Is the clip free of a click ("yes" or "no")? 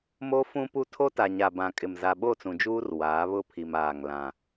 yes